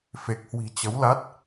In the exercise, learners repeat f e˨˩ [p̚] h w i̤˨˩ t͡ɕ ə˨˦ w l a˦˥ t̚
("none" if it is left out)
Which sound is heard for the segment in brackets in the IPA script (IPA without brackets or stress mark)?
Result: k̚